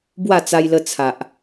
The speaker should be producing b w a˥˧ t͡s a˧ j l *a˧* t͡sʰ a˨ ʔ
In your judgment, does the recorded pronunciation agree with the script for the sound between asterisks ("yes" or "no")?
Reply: no